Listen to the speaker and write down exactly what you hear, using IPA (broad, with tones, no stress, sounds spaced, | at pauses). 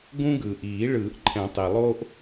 ɡ ũ˥ ɡ ɯː˩ ʔ iː˨˩˦ ɭ ɯː˨˩˦ ʔ ǃʰ ɛ̃˨˩˦ tˤ i˩ lˠ o˥ ʔ